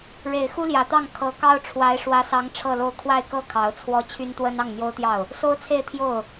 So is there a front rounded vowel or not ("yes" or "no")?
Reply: yes